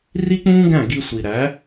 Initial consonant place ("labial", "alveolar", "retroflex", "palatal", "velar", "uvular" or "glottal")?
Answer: alveolar